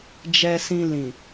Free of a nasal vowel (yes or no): no